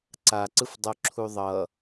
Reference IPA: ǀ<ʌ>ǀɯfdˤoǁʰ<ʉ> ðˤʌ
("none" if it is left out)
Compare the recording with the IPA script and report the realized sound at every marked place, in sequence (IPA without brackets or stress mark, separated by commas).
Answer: a, u